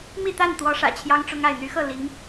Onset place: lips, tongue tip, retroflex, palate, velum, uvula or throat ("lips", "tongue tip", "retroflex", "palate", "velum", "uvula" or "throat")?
lips